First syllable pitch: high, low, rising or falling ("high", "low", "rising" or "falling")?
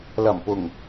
low